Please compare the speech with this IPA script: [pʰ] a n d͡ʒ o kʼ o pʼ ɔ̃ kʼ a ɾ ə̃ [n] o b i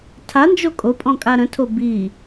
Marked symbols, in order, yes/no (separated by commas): no, no